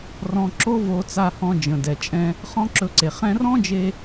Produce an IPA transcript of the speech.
r ɔ̃˧ ǁ o˦ v o˧ t͡s a˧ h ɔ̃˧ d͡ʒ ə̃˨ d ɛ˨ t͡ʃʼ ɛ̃˧ | χ ɔ̃˦ ǁ ɵ˧ ǀ e˨ χ ɛ̃˦ r ɔ̃˦ d͡ʒ e˧

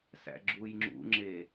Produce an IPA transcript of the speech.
s æ̰ ɡ͡ǁ u j ŋ͡ǁ ṵ ŋ͡ǁ e

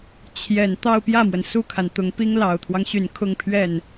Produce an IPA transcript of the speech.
t͡ɕʰ j ɛ˨˩ n t̪ ɑ˥˧ ʊ̯ p j ä˥˩ m w ə˩ n s u˥˩ kʰ a˩ n t̪ ʊ˧˥ ŋ p i˥ ŋ l ɑ˨˩ ʊ̯ t̪ʰ w ɑ˦ ŋ ɕ y˨˩ n kʰ ʊ˥˧ ŋ pʰ ɥ ɛ˥˩ n

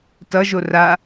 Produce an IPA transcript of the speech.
t ʌ ʒ o r a

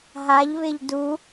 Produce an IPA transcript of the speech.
ɦ a ʎ β ɪ ʎ d u

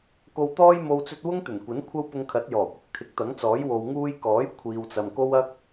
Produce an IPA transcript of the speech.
k o˨ w t̪ ɔː˧ j m o˨ w t͡s ɵ˧ t̚ w ʊ˥ ŋ t̪ ɵ˨˩ n kʷ ɐ˨˥ n kʷʰ ɐ˥ w p ʊ˧ ŋ kʰ ɐ˨˥ t̚ j ɔː˨˩ kʷ ɪ˧ k̚ t̪ʰ ɪ˨˥ k̚ t̪ ɐ˨˥ ŋ t͡s ɔː˨˥ j w o˨ w ŋ uː˧ j k ɔː˨˥ j kʷʰ iː˨ w t͡s ɐ˨ m k o˥ w ɐ˥ k̚

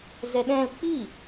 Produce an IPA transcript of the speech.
z ɛ ɗ ɛ̃ l k͡p i

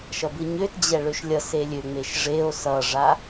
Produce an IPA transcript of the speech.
ʃ ʌ b ɯ ɲ ø t d͡ʑ ɛ ɭ ø ʃ lʲ ʌ s e lʲ ø ŋ͡m e ʃ ʐ e o̯ s ʌ ʐ a

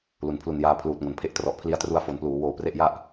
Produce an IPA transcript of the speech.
l u˩˦ n pʰ l u˨˩ n j aː˧ pʰ l uː˨˩ t̚ ŋ o˩˦ n pʰ e˦˥ ʔ t r ɔ˨˩ ʔ pʰ l i˧ a̯ t r u˧ a̯ f o˨˩ n p l uː˩˦ w oː˨˩ p r e˥˩ ʔ j a˥˩ ʔ

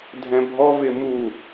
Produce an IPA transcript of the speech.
dʱ ɛ̃ bʱ ɔ v ɪ m u

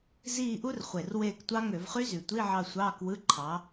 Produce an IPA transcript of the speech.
z iː˦˨ ʔ u˦˥ r χʷ e˨˩ r w eː˦˨ k tʷ ɑ˦˥ ŋ ø˧˩˧ v χ y˦˥ z y˨˩ tʷ i˧˥˧ ʕ ɑ˦˨ sʷ ɑː˧˥˧ k w ɯ˧˥˧ ǃʰ ɑ˨˦

